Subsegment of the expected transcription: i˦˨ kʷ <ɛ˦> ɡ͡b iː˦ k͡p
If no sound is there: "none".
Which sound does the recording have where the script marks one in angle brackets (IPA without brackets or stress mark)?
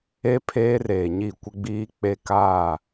ɪ˦